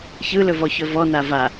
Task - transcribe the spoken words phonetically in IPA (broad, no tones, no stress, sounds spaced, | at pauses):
ç ɯ l ɵ v ɔ ç ɵ v ɔ n a v a